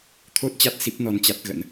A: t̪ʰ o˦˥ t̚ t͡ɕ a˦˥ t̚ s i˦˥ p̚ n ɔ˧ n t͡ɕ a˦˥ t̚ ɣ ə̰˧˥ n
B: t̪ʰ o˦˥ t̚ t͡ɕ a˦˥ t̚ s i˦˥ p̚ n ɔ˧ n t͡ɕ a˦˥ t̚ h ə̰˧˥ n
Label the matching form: A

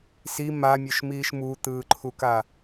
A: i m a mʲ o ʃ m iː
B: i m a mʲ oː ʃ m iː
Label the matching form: A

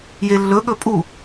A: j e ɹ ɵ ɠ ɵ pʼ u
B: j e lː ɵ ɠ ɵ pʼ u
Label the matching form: B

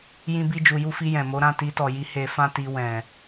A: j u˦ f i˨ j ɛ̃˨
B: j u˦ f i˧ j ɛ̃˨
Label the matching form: B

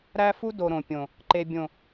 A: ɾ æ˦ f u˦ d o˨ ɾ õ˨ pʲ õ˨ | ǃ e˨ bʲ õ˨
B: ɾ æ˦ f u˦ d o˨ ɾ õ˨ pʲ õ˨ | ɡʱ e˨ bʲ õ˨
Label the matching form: A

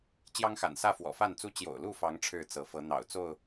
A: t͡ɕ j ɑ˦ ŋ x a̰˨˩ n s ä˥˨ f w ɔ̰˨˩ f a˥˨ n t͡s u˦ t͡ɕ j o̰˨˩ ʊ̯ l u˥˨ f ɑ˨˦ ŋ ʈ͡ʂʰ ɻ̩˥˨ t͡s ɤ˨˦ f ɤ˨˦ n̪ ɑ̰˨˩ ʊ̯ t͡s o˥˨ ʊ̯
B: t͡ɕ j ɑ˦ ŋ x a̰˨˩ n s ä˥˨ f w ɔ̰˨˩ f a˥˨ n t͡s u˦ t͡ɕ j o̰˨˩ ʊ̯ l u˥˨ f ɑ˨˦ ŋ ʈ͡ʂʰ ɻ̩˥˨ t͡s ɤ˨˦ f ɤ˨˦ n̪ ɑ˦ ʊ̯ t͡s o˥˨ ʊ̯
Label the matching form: A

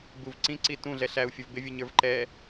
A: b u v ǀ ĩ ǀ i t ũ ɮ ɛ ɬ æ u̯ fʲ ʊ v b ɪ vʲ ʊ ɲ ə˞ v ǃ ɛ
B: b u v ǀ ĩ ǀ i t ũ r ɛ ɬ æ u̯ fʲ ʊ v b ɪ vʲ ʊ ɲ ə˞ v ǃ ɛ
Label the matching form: A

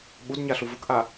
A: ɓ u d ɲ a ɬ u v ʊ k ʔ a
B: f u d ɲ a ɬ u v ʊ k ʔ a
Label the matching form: A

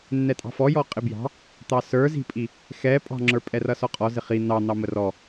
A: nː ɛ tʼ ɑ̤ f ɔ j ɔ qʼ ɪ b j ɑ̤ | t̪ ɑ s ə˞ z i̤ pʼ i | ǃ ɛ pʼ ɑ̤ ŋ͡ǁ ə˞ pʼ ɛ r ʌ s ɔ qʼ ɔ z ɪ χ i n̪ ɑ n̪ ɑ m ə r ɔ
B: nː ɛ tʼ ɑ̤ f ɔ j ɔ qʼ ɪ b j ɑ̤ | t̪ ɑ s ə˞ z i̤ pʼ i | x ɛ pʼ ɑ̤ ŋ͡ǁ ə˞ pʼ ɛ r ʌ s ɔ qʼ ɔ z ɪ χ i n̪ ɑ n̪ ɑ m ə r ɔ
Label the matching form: B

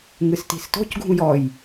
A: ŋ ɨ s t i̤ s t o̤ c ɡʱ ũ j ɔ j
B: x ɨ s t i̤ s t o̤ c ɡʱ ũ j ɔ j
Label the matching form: A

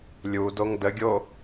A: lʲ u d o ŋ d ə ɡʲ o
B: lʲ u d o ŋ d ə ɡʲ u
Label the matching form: A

